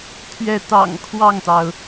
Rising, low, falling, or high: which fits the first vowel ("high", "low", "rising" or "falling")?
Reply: falling